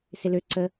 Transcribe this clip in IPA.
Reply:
s ɪ l ø ǀ ə

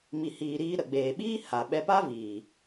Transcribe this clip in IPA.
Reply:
m i˨ h iː˨ ɾ iː˧ ɾ ə˨ ɡ͡b eː˨ ɓ iː˦ h a˨ ɓ ɛ˧ p a˦ v iː˨

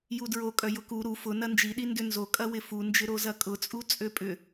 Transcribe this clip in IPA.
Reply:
j u d ɹ o kʼ œ j ʊ k u ɾ u f ʊ n ɐ n d͡ʒ i ɗ i n d ʏ n z o kʼ ɐ w ɪ f u n d͡ʒ ɪ ɾ o z ɐ kʼ ʊ t͡sʼ u t͡sʼ ø pʼ ʏ

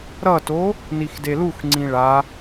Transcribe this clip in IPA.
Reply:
ɾ ʌ t o | n i x d e l u x ŋ͡ǀ ĩ ɭ a

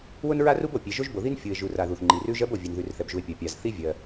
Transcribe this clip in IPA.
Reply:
w ʊ˥ n ɹ a˥ r u˥ b o˩ pʲ e˩ ʒ o˥ ʒ b o˩ ð i˥ n fʲ u˩ e̯ ʒ u˩ r a˩ ð u˩ θ ŋ͡ǃ i˩ r ʉ˥ ʒ ɜ˥ b o˩ vʲ ɛ˩ n ð ʉ˩ r θ ɛ˩ b ʒ u˩ e̯ pʲ ɜ˩ pʲ a˩ z θ i˥ vʲ ɜ˩

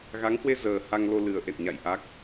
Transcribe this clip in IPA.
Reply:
ɣ a˨˦ ŋ h w e˧ z əː˨˩ h a˧ ŋ l o˧ l ɨ˨˩ ə̯ ʔ ḛ˧˨ n ɲ a̰˧˨ j ʔ a˦˥ k̚

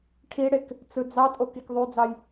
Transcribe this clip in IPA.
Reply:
ʈʰ i ɽ e k | t͡s ɯ d͡z ɑ tʼ o k i k ðˤ y d͡z ɑ j

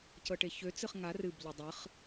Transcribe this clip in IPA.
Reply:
c ɤ ʈ e ç ø t͡s ɨ χ ŋ a r ɨ b ʎ ɨ dˤ ɨ χ

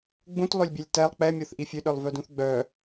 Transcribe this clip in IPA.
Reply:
ɡ͡b ũ t lˠ ø lʲ bʲ ɛ lʲ t ɛ lˠ k͡p ɛ mʲ o θ ʔ i fʲ ø ɗ œ lˠ v œ d ũ θ ɡ͡b œ

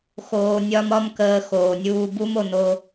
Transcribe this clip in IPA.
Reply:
x oː˧ nʲ ɒ˦ m ɒ˦ m k əː˧ x oː˨ nʲ uː˧ b u˦ m o˧ n o˧

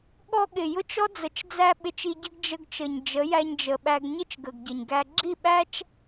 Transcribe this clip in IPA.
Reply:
ɠ ɔ˧ ɠ ɪ˨ j ʊ˦ t͡ʃ ɔ˦ d͡z ə˨ t͡ʃ d͡z æ˧ ɓ ɪ˧ t͡ʃ i˧ ɟ ə˦ ɡ d͡ʒ ə˧ ɡ t͡ʃ ə˨ ɲ d͡ʒ ə˨˦ j æ˧ ɲ d͡ʒ ə˨ ɓ æ˧ ɡ ɲ ɪ˦ t͡ʃ ɡ ə˨ ɡ ɟ ə˨ ɲ ɡ æ˧ ɡ͡ǁ i˦˨ ɓ æ˦ t͡ʃ

